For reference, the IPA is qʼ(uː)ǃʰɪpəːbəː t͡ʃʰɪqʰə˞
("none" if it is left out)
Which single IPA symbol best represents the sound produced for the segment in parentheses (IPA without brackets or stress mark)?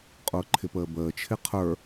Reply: ʊː